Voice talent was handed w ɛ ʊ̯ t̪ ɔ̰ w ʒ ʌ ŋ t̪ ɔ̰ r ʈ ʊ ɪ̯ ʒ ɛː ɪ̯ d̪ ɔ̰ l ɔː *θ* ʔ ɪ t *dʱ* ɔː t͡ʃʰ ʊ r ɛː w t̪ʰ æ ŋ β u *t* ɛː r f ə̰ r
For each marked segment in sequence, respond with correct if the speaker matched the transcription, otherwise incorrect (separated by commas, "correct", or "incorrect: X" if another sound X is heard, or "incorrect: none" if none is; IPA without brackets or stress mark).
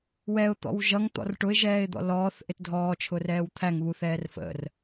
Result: correct, correct, incorrect: θ